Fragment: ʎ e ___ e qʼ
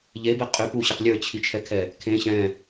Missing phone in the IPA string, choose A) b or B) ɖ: A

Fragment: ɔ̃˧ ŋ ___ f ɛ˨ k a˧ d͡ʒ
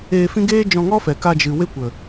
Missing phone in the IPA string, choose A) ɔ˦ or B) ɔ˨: A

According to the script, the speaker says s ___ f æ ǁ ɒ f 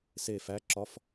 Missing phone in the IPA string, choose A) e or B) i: A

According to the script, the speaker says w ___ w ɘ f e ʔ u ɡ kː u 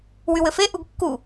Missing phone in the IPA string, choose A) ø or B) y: B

